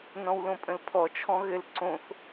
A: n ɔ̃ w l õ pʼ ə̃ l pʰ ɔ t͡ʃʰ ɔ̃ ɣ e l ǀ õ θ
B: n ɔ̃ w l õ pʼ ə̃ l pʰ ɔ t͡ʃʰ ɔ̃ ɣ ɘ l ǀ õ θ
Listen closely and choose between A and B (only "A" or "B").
B